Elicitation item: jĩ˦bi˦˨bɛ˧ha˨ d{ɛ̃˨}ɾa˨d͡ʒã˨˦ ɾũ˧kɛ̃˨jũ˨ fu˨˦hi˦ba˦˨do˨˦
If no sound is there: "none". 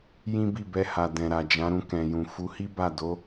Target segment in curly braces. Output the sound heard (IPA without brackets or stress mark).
ɛ̃˨